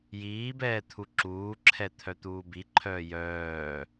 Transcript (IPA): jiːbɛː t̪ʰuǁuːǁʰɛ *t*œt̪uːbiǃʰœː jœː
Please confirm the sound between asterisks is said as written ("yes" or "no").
no